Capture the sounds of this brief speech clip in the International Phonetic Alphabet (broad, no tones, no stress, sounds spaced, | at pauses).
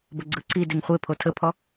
b ə ɡ͡ǀ ɯ ǀ i d e ŋ χʷ e pʰ o tʰ ə pʰ ɔ